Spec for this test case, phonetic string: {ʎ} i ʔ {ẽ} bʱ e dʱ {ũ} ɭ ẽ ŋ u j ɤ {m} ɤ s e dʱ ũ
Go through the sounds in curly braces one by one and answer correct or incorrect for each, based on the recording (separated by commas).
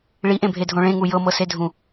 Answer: incorrect, correct, incorrect, correct